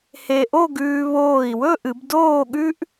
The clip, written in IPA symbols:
he˧ʔo˥˧ɡʉː˧ βoː˧˩i̯wɵ˥˧ʔɨ˩˧b doː˥˧ɠʉ˥ʔ

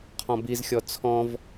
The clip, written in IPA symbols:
qʰɔ̃bizxʲɔ t͡sʰɔ̃v

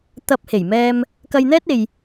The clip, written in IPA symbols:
t̪ɐ˥p̚ he˨˩jmɛː˧m | kɐ˧jn̪ɛː˥t̚e˨j

